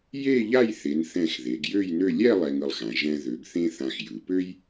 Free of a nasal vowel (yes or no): no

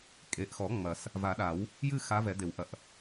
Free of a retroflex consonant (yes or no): yes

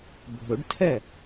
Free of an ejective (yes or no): yes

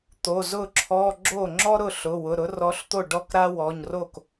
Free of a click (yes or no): no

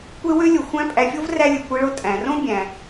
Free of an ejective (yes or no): no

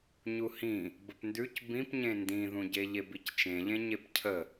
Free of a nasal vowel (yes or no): no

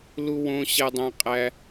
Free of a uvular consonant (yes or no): no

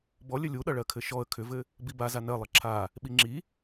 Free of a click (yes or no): no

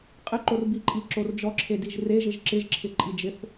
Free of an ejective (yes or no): no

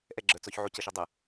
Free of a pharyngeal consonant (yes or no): no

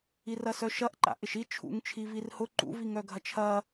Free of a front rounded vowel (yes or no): no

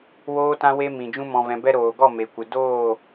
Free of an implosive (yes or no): yes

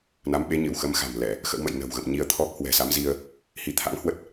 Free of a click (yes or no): yes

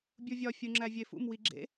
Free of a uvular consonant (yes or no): yes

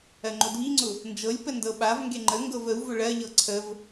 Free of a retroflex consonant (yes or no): no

